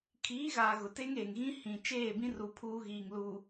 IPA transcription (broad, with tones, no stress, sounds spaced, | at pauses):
kʰ iː˨˦ ɣ aː˨ ɣ ʊ˨ t e˦ ŋ eː˨ ŋ ɣ ĩ˦ h ĩ˨ t͡ʃ eː˦˨ b ĩ˦ r u˨ pʰ uː˦ ɣ iː˨ ŋ l u˨